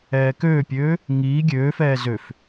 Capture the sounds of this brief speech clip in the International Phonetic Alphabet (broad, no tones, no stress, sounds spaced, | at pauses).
ɛː k øː pʲ øː | ŋ iː ɡʲ øː f ɛː z ø f